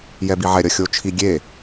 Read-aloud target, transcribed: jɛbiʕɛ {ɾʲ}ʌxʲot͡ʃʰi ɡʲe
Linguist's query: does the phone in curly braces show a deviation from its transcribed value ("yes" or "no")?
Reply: no